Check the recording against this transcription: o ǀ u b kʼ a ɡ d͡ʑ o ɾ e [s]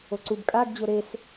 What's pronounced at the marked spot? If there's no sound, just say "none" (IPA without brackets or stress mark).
s